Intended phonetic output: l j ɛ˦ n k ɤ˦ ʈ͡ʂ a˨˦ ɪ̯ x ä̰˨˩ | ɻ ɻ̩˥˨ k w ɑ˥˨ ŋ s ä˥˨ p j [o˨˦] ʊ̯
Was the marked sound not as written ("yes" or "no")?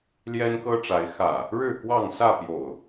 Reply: yes